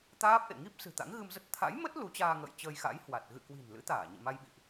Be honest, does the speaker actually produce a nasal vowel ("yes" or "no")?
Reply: no